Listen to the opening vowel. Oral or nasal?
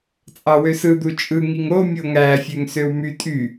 oral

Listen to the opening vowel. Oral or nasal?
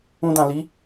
nasal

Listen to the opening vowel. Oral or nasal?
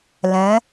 nasal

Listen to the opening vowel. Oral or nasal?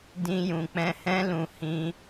nasal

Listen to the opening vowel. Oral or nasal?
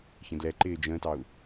nasal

